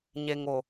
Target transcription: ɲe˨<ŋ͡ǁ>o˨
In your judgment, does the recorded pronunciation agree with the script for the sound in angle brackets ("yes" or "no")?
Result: no